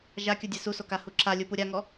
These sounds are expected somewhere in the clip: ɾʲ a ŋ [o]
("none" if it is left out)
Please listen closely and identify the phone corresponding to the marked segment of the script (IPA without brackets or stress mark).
ɔ